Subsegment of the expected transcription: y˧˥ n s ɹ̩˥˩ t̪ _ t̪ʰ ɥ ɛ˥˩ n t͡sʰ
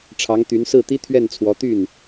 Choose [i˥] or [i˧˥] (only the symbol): i˥